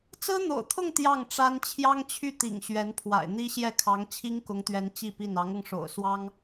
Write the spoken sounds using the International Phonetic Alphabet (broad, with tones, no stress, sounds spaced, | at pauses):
t͡s ɹ̩˥ n̪ o̰˨˩ ʊ̯ t̪ʰ ʊ˥˧ ŋ t̪ j ɑ˥˩ ŋ ʈ͡ʂ a˥ n t͡ɕʰ j ɑ˥ ŋ t͡ɕʰ y˥˩ t̪ ḭ˨˩ ŋ ɕ ɥ ɛ˧˥ n pʰ w a̰˨˩ ɪ̯ n̪ i˥ ɕ j ɛ˥˩ kʰ ɑ˧˥ ŋ t͡ɕʰ i˥ ŋ k ʊ˧˥ ŋ t̪ ɥ ɛ˧˥ n t͡ɕ i˥˧ p i˥˩ n ɑ˧˥ ŋ ɤ˧ ŋ ʂ o̰˨˩ ʊ̯ s w ɑ˥ ŋ